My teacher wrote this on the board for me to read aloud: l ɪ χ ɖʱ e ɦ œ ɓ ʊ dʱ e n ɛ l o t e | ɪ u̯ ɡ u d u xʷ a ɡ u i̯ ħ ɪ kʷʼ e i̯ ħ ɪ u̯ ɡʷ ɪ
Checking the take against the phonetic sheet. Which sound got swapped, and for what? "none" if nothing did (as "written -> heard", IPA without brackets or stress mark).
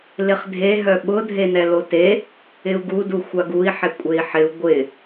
ɖʱ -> dʱ